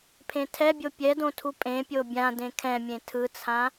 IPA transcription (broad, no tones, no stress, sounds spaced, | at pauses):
pʰ ẽ tʰ ɛ bʲ o pʲ ɛ d õ tʰ u pʼ ẽ pʲ o bʲ ã d ẽ kʰ ɛ̃ mʲ ẽ tʰ ɯ t͡sʰ ã